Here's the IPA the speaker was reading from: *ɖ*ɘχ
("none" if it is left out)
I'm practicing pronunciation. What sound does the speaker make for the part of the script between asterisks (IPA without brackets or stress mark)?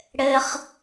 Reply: ɽ